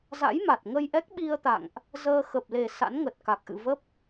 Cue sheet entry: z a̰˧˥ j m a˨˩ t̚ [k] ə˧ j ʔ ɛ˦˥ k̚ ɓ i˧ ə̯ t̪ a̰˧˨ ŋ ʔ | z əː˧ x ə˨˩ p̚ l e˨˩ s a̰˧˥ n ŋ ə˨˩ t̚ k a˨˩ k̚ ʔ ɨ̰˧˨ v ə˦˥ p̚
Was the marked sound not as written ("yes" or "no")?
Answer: yes